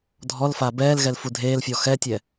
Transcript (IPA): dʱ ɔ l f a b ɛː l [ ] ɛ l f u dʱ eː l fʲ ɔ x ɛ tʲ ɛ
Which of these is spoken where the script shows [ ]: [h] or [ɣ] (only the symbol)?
ɣ